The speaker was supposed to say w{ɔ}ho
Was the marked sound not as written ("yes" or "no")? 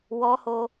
no